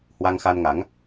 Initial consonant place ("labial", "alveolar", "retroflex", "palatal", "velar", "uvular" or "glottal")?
glottal